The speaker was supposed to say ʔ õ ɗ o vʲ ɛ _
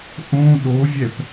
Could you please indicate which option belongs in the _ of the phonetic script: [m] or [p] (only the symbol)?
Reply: p